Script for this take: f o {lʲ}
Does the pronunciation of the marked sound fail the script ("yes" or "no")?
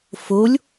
no